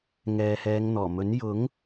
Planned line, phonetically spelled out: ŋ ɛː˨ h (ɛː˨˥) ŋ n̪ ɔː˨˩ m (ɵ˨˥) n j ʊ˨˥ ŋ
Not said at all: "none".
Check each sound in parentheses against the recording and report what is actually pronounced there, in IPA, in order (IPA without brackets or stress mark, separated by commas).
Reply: ɛː˨˧, ɵ˨˥